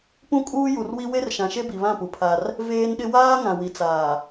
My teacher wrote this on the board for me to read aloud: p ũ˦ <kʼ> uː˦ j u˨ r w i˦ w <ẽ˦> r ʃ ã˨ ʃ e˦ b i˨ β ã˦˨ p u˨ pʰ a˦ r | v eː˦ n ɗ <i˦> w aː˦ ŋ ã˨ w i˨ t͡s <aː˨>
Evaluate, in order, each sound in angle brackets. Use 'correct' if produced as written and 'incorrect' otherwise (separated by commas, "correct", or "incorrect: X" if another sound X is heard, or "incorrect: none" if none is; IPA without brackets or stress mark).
correct, incorrect: e˦, incorrect: ɪ˦, correct